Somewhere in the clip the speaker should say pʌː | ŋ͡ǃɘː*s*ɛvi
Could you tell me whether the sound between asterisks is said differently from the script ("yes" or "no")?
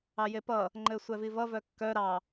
yes